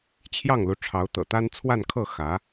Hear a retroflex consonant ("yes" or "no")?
yes